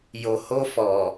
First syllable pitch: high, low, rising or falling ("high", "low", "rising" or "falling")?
low